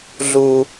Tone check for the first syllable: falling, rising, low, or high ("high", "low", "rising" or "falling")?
high